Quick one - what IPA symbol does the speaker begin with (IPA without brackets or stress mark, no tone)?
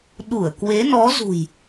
ɗ